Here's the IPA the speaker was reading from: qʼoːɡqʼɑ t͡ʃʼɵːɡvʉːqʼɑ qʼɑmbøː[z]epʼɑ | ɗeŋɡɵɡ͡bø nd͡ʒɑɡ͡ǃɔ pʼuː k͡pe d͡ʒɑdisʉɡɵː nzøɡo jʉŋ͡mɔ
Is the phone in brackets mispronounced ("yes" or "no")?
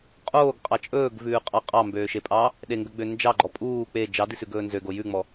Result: yes